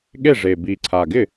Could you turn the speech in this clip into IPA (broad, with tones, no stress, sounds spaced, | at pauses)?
ɠ e˥˩ ʐ e˨˩ b i˨˩ ǀʰ a˨˩ ɡ ɪ˥˩